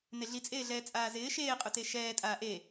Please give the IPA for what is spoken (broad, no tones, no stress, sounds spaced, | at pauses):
n e ɮ i t͡sʼ eː ɮ ɛː t͡sʼ aː z ɪː ʃ eː qʼ ʊ t e ʃ ɛː tʼ aː ʔ e